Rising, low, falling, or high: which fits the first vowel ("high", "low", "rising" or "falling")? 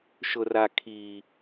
low